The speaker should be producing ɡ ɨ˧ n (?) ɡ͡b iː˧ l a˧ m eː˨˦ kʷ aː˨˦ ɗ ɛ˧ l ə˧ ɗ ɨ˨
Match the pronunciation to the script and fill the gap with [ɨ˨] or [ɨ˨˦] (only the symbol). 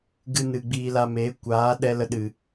ɨ˨